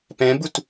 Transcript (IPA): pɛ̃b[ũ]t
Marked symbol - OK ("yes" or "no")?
no